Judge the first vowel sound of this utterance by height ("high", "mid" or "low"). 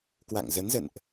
low